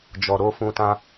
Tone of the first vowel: low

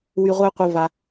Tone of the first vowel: high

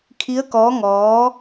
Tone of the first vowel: rising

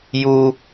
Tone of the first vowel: high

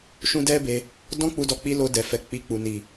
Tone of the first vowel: high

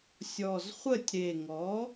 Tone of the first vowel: low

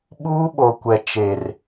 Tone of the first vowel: high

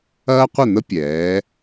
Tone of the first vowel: high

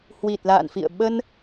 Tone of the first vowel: low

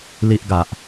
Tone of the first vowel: high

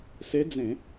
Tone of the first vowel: rising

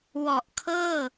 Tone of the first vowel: low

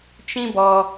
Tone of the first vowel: high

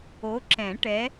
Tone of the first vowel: rising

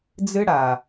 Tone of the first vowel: high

